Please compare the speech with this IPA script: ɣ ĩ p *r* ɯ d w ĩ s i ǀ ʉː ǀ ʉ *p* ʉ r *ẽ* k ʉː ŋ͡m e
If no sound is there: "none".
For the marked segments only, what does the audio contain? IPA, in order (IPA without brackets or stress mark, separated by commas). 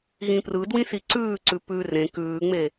r, p, ẽ